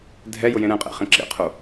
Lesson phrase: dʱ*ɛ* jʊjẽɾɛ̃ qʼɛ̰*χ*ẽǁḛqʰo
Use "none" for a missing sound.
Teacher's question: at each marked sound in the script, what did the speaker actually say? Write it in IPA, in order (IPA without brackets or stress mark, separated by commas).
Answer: ɛ, χ